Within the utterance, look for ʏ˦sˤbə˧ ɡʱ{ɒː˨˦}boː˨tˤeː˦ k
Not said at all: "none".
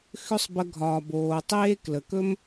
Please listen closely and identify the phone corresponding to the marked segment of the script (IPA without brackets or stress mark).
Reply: ɒː˨